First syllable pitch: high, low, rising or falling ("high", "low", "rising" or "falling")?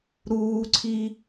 high